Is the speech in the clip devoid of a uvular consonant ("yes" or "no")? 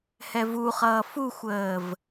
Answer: no